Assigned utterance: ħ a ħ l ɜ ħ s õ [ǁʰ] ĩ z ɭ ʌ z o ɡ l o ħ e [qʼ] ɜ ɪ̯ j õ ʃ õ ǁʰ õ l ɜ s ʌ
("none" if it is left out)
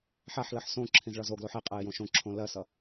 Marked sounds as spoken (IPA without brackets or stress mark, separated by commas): ǁʰ, qʼ